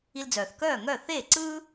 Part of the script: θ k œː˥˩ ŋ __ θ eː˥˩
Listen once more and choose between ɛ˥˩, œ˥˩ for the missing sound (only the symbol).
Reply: œ˥˩